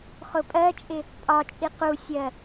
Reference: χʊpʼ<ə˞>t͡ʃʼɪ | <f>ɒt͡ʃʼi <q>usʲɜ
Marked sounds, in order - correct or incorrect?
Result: incorrect, incorrect, correct

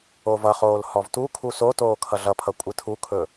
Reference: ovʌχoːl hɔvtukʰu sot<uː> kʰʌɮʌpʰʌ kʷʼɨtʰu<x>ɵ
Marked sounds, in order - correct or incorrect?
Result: incorrect, incorrect

